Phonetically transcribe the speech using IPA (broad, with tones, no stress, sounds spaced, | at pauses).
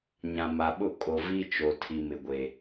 ɲ ã˨ m a˨ ɓ ʊ˦˨ kʼ o˨ v i˦ t͡ʃ o˨ tʰ i˨ m ɪ˨ ɡʷ e˨